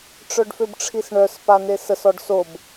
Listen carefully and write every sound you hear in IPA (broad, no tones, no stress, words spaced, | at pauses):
ʈ͡ʂœɖføbʈ͡ʂʰisɳœs panesəs ɔɖsob